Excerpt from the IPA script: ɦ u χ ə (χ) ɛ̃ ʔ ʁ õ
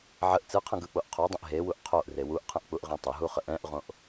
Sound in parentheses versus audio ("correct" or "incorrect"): incorrect